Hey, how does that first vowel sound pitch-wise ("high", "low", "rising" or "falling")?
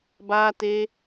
high